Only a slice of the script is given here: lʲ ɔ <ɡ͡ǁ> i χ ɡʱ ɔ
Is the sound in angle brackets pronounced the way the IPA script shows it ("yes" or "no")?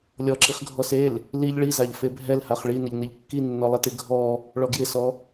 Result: no